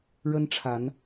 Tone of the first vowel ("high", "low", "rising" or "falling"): high